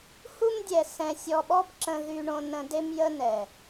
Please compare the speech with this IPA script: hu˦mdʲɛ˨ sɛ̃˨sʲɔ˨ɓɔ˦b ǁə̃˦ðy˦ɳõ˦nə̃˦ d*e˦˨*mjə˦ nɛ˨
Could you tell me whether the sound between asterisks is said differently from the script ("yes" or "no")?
yes